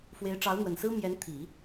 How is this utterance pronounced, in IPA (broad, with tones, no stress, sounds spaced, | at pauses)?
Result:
f w e˧˥ ɪ̯ ʈ͡ʂ ɑ˧˥ ʊ̯ n̪ w ə˨˩ n s ɹ̩˥ m j ɛ˧˥ n t̪ʰ i˨˩˦